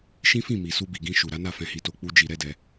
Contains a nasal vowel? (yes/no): yes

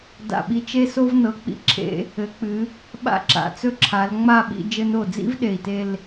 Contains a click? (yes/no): yes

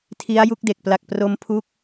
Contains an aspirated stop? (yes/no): yes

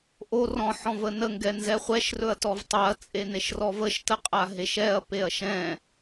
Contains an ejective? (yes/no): yes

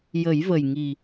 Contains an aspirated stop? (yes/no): no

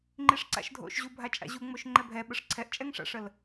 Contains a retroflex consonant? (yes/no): yes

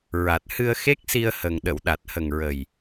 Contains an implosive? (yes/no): yes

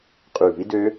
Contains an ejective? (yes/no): yes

